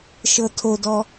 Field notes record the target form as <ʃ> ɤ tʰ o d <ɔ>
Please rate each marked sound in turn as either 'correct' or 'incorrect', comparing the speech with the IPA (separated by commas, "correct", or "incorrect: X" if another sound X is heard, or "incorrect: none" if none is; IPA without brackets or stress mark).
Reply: correct, correct